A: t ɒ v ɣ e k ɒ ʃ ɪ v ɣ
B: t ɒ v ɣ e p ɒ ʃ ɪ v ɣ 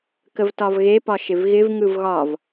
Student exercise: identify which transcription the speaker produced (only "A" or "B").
B